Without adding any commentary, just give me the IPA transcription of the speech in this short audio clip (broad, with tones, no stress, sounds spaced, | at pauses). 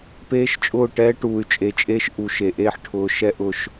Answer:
p eː˦ ʃ t͡ʃʼ ʊː˦˨ ʈ ɛː˦ ʈ uː˨ y̯ t͡ʃʼ e˨ t͡ʃʼ eː˦ ʃ ʔ u˨ ʃ e˨ ʔ eː˦ ħ ʈʰ ʊː˨ ʃ ɛ˦ ʔ ʊ˨ ʃ